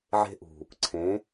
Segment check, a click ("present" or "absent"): present